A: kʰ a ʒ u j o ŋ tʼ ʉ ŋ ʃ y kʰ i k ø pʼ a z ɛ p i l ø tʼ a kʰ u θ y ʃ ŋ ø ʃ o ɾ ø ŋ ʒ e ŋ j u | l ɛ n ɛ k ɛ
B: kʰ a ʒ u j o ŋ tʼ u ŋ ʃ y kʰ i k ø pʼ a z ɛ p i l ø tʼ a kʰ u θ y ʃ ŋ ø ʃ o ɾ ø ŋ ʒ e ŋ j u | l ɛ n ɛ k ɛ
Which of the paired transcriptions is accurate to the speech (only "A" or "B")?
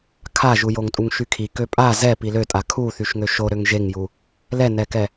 B